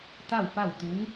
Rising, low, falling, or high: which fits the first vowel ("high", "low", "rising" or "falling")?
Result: falling